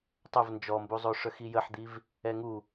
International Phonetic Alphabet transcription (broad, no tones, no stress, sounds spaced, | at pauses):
tˤ ə v n d͡ʒ ɔ m b u zˤ o ʂ œ x i j ə ħ d̪ i v | ɛ ŋ u